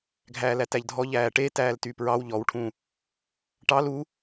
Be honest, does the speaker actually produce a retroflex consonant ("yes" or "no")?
yes